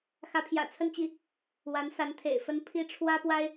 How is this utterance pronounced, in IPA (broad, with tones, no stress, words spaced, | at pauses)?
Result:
xä˧˥pʰjä̰˨˩t͡sʰə˥˧nt͡ɕi˥˩ | wa˧˥nsa˧˥nt̪ʰḛ˨˩ɪ̯fə˥n pʰi˥ʈ͡ʂʰwä˥ pwa˥ɪ̯